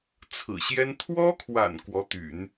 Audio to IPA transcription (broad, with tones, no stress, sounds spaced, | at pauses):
t͡sʰ ɹ̩˨˩ ɕ j ɛ˥ n t̪ʰ w ɔ˥ kʰ w a̰˨˩ n k w ɔ˧˥ t̪ y̰˨˩˦ n